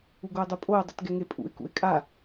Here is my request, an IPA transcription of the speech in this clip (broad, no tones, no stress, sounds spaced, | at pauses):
u ɡ o ɪ̯ dˤ u pʼ o ə̯ dˤ ɯ t ɡ ɛ ŋ e pʼ ṵ ɪ̯ k ṵ ɪ̯ kʼ a